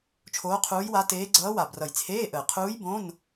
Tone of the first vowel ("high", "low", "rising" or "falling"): rising